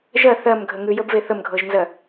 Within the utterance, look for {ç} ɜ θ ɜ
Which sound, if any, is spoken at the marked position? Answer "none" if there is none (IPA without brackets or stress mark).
ʒ